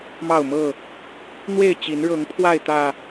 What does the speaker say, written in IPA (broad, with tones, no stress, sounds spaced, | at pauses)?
m ɑ˥˨ ʊ̯ m ɤ˥˨ | n̪ w e˥˨ ɪ̯ t͡ɕ i˨˦ n ɻ ɤ˨˦ ŋ pʰ w a˥˨ ɪ̯ t̪ ä˨˩